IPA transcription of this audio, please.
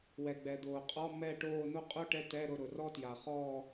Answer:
w ɛ˩ ɡ͡b ɛ˩ d̪ oː˩ qʼ ɔ˧˥˧ m ɛ˦˨ ʈ oː˦˨ n o˥ qʼ o˥ ʈ ɛ˧˥˧ t ɛ˧˥˧ ɾ ʊ˦˨ ɾ ʊ˩ r ɔ˥ t j a˩ χ ɔː˦˨

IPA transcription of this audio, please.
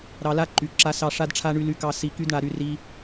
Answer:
ɾ ɑ˧ l a˦ ǃ y˨ ǁ a˧ s ɑ˧ ʂ a˦ d ʈ͡ʂʰ a˦ ɳ y˧ l y˧ k ɑ˧ s i˧ k y˦ d ɳ a˧ ɾ y˧ r i˧

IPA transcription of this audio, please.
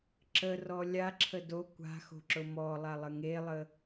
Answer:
ǁ ə r ɔ lʲ a ǁʰ ə d o kʷ a̤ x o̤ ǁ ʊ m ɔ lˠ a lˠ ə ŋ e lˠ ə

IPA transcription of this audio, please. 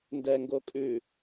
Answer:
n d ɛ ŋ ɡ o kʼ ʉ

